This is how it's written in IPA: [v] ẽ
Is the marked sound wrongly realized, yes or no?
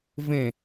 no